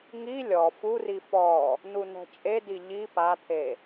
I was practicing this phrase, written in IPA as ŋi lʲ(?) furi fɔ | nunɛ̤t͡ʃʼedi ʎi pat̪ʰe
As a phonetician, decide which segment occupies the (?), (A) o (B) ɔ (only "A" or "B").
B